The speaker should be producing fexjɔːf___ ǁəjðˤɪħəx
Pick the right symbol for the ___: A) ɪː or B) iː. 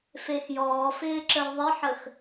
A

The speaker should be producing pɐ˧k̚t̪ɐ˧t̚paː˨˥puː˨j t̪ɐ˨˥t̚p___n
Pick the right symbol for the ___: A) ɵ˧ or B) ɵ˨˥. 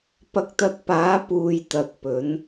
B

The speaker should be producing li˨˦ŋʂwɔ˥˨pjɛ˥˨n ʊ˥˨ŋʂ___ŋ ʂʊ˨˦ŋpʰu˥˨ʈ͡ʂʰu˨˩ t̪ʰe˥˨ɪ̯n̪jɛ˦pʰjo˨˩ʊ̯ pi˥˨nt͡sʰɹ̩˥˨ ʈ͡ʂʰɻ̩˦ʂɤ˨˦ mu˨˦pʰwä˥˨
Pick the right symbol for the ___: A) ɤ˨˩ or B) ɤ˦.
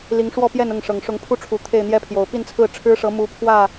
A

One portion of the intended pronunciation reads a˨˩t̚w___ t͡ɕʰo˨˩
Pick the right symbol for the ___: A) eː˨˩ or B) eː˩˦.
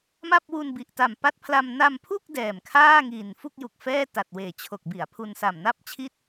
A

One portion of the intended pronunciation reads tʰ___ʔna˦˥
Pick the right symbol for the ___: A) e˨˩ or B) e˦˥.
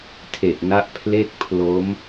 A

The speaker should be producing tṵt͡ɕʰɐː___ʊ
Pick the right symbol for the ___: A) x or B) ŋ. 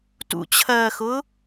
A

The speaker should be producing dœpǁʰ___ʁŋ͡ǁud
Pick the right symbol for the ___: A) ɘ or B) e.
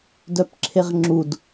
B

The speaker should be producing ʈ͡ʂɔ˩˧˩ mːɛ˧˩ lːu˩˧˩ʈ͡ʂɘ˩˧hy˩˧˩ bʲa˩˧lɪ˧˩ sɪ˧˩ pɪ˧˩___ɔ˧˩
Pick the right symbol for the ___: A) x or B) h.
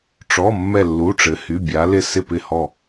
B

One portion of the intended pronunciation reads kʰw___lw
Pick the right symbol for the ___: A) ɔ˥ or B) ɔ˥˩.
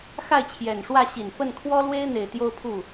A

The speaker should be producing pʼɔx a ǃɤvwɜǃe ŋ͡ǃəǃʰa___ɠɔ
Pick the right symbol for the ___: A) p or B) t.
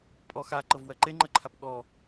A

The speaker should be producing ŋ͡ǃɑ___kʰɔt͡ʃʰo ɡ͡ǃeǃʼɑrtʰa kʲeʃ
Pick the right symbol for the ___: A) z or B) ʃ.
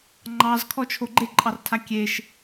A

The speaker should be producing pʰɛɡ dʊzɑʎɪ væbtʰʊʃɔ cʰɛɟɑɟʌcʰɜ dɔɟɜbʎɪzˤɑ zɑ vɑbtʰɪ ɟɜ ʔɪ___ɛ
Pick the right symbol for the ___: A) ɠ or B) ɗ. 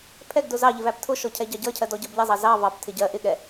A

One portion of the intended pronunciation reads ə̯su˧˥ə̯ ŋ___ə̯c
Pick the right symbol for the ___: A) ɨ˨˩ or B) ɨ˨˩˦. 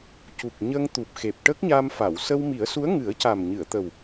B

